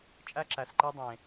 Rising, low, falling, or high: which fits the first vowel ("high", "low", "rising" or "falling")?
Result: high